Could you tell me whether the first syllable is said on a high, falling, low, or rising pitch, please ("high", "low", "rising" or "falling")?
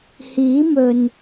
rising